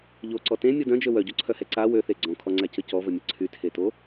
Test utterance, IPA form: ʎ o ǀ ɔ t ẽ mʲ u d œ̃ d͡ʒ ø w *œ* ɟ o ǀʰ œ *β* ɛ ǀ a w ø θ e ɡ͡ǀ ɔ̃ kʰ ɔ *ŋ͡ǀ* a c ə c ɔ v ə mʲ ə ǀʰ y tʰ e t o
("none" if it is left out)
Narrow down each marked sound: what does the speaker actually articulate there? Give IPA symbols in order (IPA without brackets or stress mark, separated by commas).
œ, h, ŋ͡ǀ